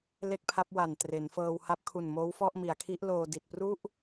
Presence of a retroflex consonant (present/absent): absent